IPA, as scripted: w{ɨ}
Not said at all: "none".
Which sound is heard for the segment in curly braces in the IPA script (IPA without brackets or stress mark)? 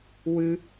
ɨ